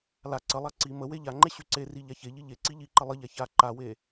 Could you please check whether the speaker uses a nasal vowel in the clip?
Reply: no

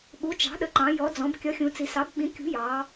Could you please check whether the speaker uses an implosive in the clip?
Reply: yes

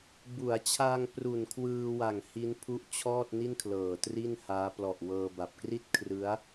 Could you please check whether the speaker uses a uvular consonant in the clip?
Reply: no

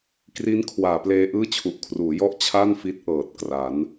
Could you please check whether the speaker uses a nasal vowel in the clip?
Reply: no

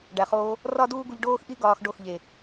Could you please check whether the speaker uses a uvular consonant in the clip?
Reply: yes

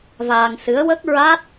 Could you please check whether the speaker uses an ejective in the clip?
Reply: no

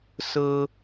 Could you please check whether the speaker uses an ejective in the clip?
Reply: no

